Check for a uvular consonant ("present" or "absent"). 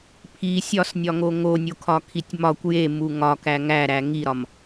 absent